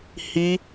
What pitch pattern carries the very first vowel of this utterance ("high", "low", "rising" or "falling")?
high